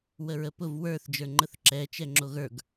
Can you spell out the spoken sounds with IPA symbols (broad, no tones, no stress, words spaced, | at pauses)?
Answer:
wəɹəpʊv wə˞θ d͡ʒə˞ŋ͡ǃəθǁɛ t͡ʃɛŋ͡ǁoɣə˞ɡ